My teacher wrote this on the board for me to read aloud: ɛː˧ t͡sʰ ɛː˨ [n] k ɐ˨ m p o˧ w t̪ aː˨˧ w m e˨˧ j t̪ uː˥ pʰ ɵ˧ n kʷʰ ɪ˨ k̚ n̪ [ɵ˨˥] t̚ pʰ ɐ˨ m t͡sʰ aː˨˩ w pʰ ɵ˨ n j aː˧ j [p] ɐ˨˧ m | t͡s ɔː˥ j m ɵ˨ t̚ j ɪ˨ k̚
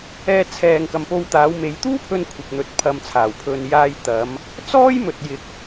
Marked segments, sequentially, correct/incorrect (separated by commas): incorrect, correct, incorrect